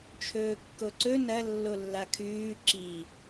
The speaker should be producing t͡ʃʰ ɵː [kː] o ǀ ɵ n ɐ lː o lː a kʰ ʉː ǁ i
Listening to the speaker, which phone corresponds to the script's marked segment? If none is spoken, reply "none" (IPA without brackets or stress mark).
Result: kː